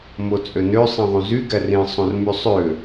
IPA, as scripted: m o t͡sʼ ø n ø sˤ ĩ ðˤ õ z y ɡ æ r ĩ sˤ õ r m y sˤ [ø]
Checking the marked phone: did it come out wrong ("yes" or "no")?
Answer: no